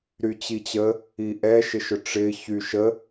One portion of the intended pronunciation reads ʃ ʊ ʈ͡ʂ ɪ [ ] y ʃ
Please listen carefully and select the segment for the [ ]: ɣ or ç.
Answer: ç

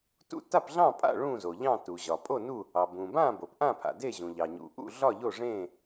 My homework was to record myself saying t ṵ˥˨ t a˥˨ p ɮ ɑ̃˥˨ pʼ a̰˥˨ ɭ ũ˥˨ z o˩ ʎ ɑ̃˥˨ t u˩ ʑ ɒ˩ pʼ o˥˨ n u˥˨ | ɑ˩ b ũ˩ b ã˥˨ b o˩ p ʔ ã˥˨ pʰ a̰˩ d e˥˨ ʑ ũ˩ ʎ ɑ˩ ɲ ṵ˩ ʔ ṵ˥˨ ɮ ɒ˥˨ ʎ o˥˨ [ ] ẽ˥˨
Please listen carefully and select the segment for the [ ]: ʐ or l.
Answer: ʐ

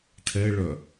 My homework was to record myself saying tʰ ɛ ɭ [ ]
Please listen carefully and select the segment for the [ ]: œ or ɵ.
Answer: œ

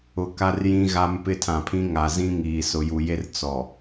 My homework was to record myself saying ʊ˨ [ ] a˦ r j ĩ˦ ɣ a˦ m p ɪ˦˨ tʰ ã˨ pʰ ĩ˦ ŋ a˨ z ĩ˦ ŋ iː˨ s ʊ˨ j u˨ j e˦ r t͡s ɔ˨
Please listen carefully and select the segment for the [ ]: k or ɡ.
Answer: k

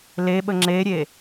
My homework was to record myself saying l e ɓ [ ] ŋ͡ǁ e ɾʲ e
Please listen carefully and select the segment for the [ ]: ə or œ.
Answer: ə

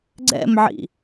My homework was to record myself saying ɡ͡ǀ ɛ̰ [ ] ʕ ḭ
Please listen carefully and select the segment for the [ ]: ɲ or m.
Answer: m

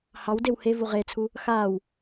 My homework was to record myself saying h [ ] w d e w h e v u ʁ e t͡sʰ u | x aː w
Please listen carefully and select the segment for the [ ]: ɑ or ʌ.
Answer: ɑ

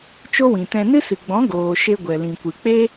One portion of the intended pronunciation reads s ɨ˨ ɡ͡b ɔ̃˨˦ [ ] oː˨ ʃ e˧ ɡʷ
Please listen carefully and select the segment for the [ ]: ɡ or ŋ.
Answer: ɡ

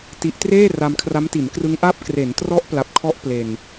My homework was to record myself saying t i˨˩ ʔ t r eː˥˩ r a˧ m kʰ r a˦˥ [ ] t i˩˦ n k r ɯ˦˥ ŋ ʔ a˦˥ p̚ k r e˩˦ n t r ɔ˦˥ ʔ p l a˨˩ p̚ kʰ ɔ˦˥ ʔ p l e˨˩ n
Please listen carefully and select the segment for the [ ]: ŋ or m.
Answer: m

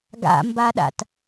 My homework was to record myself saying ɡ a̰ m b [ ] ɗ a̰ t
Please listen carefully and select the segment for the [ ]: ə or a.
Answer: a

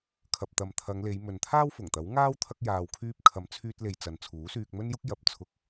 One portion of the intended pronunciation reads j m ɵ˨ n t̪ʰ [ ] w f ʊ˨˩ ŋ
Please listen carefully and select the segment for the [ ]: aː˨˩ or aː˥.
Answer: aː˥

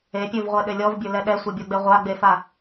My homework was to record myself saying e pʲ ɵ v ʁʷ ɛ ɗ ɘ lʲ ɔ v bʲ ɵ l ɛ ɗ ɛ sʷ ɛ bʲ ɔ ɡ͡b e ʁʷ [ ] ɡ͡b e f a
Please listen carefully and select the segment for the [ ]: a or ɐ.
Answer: a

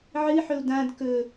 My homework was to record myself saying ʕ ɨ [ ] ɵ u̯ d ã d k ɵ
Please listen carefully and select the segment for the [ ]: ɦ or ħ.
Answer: ħ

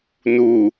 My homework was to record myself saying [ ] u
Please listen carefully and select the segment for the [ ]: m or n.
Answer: n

